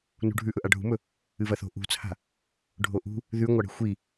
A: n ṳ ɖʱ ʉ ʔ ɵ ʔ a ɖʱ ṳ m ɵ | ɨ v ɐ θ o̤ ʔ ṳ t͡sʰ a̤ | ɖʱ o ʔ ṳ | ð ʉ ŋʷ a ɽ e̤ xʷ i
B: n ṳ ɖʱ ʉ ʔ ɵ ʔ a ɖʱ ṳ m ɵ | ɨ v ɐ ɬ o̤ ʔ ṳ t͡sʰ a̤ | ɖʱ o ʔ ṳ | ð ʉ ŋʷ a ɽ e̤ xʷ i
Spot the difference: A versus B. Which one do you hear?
A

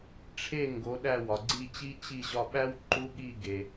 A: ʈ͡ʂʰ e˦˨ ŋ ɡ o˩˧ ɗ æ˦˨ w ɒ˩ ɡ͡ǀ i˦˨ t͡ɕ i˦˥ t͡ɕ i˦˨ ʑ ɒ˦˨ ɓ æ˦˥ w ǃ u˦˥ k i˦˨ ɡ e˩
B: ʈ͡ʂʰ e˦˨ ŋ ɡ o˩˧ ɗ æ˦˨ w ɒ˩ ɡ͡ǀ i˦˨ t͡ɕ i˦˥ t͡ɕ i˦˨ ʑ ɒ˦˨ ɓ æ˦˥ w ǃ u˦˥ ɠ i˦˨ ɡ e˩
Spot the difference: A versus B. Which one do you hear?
B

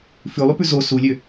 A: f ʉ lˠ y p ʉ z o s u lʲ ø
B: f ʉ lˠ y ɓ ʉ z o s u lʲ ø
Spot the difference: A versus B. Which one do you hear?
A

